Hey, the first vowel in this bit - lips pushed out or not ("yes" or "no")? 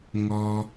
yes